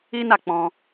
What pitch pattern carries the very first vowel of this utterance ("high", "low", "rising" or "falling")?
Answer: high